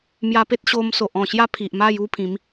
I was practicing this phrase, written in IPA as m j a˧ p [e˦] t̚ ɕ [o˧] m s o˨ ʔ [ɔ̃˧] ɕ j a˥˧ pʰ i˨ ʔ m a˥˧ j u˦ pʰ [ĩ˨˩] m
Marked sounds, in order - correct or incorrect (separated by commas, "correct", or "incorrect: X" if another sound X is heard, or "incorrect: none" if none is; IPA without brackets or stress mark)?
correct, correct, incorrect: ɔ̃˨˩, incorrect: ĩ˨˦